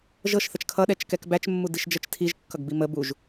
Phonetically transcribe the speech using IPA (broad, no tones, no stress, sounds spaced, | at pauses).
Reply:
ʒ ɤ ʃ θ ə t͡ʃ kʰ ʌ ɗ ɛ t͡ʃ k ɛ k b æ t͡ʃ mː u d i ʃ d͡ʒ ə t͡ʃ tʰ i ʒ kː ʌ ɡ b i m ə b u ʒ